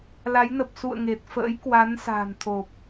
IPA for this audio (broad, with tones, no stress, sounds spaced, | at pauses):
l a˨˦ j n ə˨˩ p̚ s ṵ˧˨ ə̯ ŋ e˨˩ t̚ f ə̰ː˧˥ j k w a˨˦ n s a̤ː˨˩ n t̪ʰ o˨˩ p̚